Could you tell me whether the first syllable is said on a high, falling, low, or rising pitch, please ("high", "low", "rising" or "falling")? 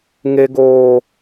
high